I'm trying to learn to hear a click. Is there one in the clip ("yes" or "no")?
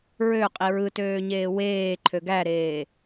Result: yes